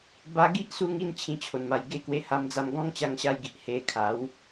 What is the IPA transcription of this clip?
b a˧ ɡ i˦ ʔ s u˧ ŋ i˥˧ n t͡ɕʰ ĩ˧ t͡ɕʰ o˨˩ n m a˨˩ j ɡ e˥˧ k w e˧ h a˦ m d͡z a˦ m ɡ ɔ̃˦ ŋ t͡ɕ a˧ ŋ ɕ a˧ j ɡ i˨ ʔ h e˧ kʰ a˨˦ w

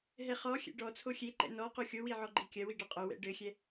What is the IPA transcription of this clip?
ɦ ɛ χ ɔ xʲ ɛ̰ ɖ ɔ t͡sʰ o xʲ e ǃ ɛ̰ n ɔ q u xʲ o w i ʕ ɔ ɡ͡ǃ i kʲ ɐ w i ɖ ɐ qʼ o w ɛ̰ ɖ ɘ xʲ ɛ

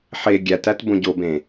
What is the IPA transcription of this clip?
ħ e ɡʲ æ t æ t b õ ɟ o b ẽ

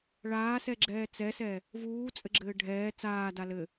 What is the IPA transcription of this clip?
ɭ aː s ɛ ɡ͡ǁ ɛː t͡s ɛ s ɛ | v uː t͡sʼ ɘ ɡ͡ǁ ɘː ɖʱ ɛː t͡s aː d a l ɘ

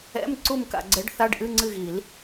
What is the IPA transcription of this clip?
ɛ̰˧˥˧ m ǀ u˦˨ m k a̰˨ ɡ͡ǀ ɛ˨˥ ɖ θ a˧˥˧ ɖ ʔ ɨ˧˥˧ ŋ͡ǀ ɨ˦˨ ɣ i˨˩˦ l

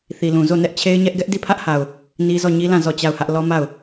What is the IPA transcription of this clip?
θ i˨ l ũ˨ z o˦˨ n ɛ˦ ʔ t͡ɕʰ e˦ ɪ̯ ɲ ɛ˦ ʔ ɡ ɛ˦ ʔ d i˦˨ pʰ ä˦ ʔ h a˨ ʊ̯ | n i˦ z ɔ˦˨ ɲ i˦ l ã˦˨ z ɔ˦˨ t͡ɕ a˦˨ ʊ̯ h ä˦ ʔ l ɔ˦ m a˦˨ ʊ̯

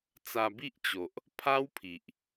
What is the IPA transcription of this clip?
t͡s a˧ b i˦ ʔ t͡ɕ o˨ ʔ | pʰ a˦ w pʰ i˨ ʔ

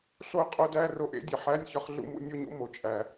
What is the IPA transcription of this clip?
ɬ o˥˧ qʼ o˦˥ d æ˧˥˧ r o˥˧ ʔ ḛ˦˥ dʲ e˩ ħ æ˧˥˧ nʲ ç ɒ˦˥ χ ɮ ṵ˥˧ m ṵ˥˧ nʲ o˥˧ ɲ ṵ˥˧ m o˩ t͡ʃʼ æ˩

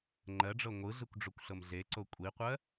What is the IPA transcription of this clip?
ŋ͡ǃ ɜ ɖ͡ʐ ɤ ŋʷ ɯ ɮ ɯ kʷ ɖ͡ʐ o kʷ ɬ ɤ m ɮ e ǀ o kʷʼ i qʷ ɜ

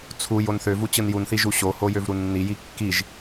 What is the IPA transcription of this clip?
t͡sʰ u j o n θ ø v u t͡ɕ ɯ n j u n θ i ʒ u ɕ o h o j ø v ɾ u nː i j i kː i ʒ

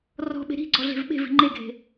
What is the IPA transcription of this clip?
r ɔ̤ ɓ e̤ ɾ i̤ ɡ͡ǀ ɔ ɮ e̤ v ɓ e̤ v i̤ ŋ͡ǃ e ɡʱ e̤

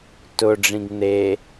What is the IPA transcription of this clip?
t ʊ ɖ͡ʐ ĩ ɡ n̪ e

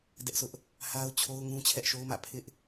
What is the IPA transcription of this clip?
d ɛ˦ ʔ s ʊ˦ ʔ | h a˦ ʊ̯ t͡ɕʰ o˦ ʊ̯ ŋ ũ˦ t͡ɕʰ ɛ˦ ʔ ʃ o˦ ʊ̯ m ä̰˦˨ pʰ ɪ˦ ʔ

